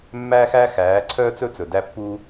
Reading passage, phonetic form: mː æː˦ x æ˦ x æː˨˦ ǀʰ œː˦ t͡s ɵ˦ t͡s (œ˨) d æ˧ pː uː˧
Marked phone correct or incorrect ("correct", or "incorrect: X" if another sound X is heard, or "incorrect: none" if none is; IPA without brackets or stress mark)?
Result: incorrect: ɵ˨